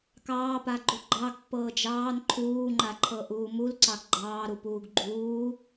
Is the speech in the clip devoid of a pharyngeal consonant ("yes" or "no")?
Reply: yes